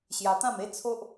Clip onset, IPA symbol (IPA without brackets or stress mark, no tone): ɕ